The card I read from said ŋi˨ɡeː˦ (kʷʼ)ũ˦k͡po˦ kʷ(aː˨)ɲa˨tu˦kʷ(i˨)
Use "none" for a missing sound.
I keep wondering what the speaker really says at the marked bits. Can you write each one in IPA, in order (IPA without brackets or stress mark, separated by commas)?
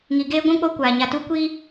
ɡʷ, aː˨, i˦